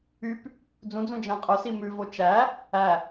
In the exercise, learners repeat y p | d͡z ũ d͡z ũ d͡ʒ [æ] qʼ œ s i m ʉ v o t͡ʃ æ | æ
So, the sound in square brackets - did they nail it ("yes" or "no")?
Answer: no